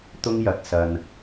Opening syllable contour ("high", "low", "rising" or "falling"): high